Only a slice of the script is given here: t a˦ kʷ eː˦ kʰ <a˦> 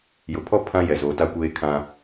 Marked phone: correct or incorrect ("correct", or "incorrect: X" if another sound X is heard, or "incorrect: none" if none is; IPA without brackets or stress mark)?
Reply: incorrect: ã˦